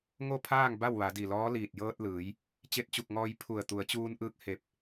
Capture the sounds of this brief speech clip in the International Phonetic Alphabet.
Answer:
ŋo˥˨pʰaː˥˨ŋ ba˥˨wʋa˩˧di˧˩lɔː˧˥ liː˧˩t̚jɤː˧t̚lɯː˩˧j | t͡ɕe˧˥t̚t͡ɕu˧˩k̚ŋɔː˧j pʰu˧˩ə̯ t̪u˩˧ə̯t͡ɕuː˧nʔɯː˧˥k̚ he˧˩p̚

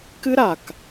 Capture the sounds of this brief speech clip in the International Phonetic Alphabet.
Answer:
kɨ˥ɾa˨k

